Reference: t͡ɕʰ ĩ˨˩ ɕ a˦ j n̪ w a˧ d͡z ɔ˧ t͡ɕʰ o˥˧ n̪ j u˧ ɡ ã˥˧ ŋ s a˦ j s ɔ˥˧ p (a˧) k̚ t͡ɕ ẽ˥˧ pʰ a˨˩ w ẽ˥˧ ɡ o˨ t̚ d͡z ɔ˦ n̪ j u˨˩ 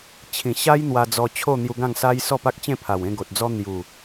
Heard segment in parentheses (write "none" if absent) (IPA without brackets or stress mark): a˦